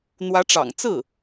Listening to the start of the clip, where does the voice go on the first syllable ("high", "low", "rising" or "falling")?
rising